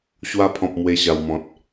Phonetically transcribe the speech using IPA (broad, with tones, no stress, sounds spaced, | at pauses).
ɕ w a˧ pʰ ɔ̃˨ p̚ m w e˧ ɕ a˨˩ w m ɔ̃˨ t̚